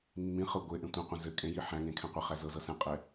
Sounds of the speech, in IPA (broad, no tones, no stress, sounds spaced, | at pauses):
mː ĩ χ ɤ ɡʷ e ʔ ẽ tʷ ĩ qʷ ɛ̃ z ɘ kʼ ẽ j i ħ æ̃ ŋ ẽ kʰ ɛ̃ qʷ ɘ χ æ z ɤ z ɤ s ɛ̃ qʼ ɛ